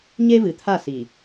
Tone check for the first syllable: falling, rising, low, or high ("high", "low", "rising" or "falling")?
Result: high